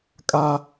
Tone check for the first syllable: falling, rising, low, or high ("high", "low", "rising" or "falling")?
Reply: high